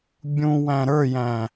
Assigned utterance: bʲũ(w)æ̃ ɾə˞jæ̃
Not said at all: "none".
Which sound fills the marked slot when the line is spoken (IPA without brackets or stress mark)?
w